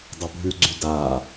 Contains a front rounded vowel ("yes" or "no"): yes